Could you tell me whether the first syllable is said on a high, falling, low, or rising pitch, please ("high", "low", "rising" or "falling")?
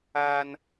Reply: high